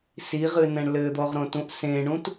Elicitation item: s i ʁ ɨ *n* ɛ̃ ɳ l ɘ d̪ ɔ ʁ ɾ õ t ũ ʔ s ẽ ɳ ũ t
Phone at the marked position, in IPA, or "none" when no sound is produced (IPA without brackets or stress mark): n